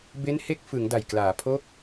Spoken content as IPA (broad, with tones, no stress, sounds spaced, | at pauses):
b e˦˥ n h e˦˥ k̚ f ɯ˩˦ ŋ d a˨˩ j k l aː˩˦ pʰ o˦˥ k̚